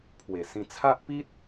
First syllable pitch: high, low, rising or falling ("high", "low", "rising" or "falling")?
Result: low